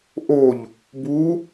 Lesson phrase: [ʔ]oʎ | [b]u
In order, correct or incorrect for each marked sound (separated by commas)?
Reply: correct, correct